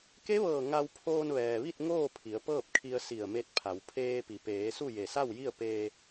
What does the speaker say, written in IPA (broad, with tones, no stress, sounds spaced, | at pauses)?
k e˧˥ ʋ ɤː˧˩ ŋ a˧ w pʰ oː˧ n ʋ ɛː˩ ʋ i˥˨ t̚ ŋ oː˥˨ pʰ i˩˧ ə̯ p ɤː˥˨ p̚ kʰ i˧ ə̯ s i˧˩ ə̯ m e˧ t̚ pʰ a˩˧ w pʰ eː˧ p i˩ p eː˩˧ s u˥˨ j e˧˩ s a˥˨ w j i˥˨ ə̯ p eː˧